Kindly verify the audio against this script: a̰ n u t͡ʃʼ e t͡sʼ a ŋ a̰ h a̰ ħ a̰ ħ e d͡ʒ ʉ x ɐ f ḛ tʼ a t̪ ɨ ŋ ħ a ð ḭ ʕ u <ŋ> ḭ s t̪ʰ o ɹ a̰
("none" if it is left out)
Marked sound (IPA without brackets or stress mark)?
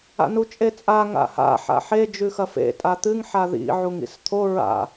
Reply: ŋ